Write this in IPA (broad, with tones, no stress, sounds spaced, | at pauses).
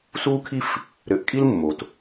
s uː˦ kʰ i˦ f | ɾ ɘ˨ ʔ kʼ i˦ l mː o˨ t